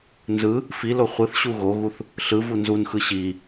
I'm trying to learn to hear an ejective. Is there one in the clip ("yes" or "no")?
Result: no